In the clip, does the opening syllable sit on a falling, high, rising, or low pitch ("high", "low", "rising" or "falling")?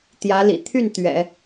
rising